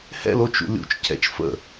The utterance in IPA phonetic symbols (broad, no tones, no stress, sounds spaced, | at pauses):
h ɛ̰ l o t͡ʃ ṵ lʲ ṵ t͡ʃ cʰ ɛ̰ t͡ʃ f ə̰